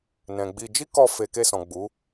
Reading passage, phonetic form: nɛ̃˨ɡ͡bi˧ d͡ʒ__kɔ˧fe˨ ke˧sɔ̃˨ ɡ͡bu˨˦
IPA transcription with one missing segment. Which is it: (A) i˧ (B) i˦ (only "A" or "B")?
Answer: B